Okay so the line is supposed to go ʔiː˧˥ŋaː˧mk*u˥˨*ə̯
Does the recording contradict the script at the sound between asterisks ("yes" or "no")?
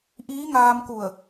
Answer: yes